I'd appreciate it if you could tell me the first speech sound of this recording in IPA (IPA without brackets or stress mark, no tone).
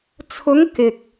t͡sʰ